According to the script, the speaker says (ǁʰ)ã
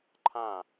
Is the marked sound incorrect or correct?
incorrect